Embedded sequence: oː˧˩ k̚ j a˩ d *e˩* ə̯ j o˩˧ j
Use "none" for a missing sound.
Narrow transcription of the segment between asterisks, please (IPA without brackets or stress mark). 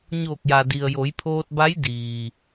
i˩